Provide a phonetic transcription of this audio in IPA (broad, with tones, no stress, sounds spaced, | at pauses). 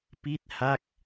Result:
p i˥˩ t̚ h a˥˩ k̚